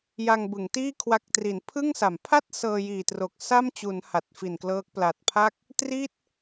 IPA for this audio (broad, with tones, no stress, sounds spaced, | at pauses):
j a˧ ŋ b ɯ˩˦ ŋ t iː˥˩ kʰ w a˦˥ k̚ t r i˩˦ n pʰ ɯ˥˩ ŋ s a˩˦ m pʰ a˥˩ t̚ s ɤː˧ j iː˨˩ t r o˨˩ k̚ s a˥˩ m t͡ɕ u˩˦ n h a˨˩ t̚ f i˨˩ n k l ɤː˦˥ k̚ p l a˨˩ t̚ pʰ a˥˩ k̚ | t r i˥˩ t̚